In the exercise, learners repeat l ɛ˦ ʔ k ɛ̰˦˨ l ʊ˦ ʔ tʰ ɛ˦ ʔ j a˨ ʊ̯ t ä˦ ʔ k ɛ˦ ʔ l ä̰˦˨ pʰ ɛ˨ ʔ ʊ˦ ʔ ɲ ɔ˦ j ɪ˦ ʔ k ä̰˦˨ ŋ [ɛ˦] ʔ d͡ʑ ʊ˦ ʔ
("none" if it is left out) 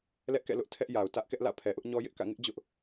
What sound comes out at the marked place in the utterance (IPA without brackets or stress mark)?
ɪ˦